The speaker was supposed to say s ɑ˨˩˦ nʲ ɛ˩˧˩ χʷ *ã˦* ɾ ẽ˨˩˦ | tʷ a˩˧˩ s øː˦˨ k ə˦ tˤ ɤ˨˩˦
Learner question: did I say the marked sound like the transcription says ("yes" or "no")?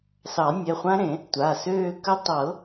yes